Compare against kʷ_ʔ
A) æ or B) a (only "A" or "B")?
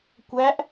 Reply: A